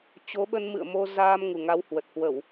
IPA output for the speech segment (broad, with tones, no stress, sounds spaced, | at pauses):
t͡ɕ o˨˦ ɓ ə˧ n m ɨ̰˧˨ ə̯ m o˧ z aː˧ m ŋ u˨˩ ŋ a˨˦ w h w ə˨˩ t̚ h w ə˧˩˨ w